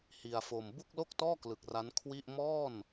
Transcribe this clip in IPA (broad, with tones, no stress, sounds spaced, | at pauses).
h i˧ a̯ f o˧ m b u˥˩ k̚ l o˥˩ k̚ t ɔː˥˩ k l ɯ˨˩ k̚ r a˦˥ n kʰ w i˥˩ ʔ m ɔː˥˩ n